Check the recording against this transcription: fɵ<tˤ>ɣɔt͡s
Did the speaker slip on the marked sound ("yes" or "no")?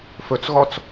yes